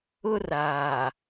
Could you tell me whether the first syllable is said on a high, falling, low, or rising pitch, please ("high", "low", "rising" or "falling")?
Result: high